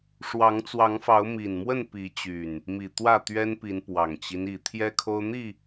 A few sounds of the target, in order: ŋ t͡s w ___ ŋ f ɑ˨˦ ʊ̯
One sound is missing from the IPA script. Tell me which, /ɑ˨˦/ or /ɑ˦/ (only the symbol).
ɑ˨˦